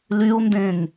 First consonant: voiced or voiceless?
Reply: voiced